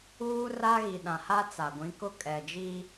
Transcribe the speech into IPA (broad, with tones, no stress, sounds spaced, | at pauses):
uː˦ r a˦ ɣ i˨ ɗ ã˨ h a˦ t͡s a˨ ɡʷ ĩ˨˦ k ʊ˦ kʼ ɛ˨ d͡ʒ i˦